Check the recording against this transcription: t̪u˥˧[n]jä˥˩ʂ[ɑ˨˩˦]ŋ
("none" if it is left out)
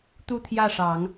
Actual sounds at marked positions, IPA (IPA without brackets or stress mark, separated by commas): t̪ʰ, ɑ˨˩˦